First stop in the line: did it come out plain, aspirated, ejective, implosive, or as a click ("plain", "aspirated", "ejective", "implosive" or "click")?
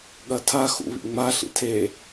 implosive